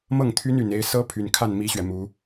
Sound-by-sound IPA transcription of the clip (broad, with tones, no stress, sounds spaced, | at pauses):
m ɤ˥˩ ŋ t̪ʰ y˥ n y˨˩ n e˧˥ ɪ̯ s ɤ˥ pʰ y˨˩ n kʰ a˥˩ n m i˥ ɕ ɥ ɛ˨ m u˧˥